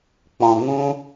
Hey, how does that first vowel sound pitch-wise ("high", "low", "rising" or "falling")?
low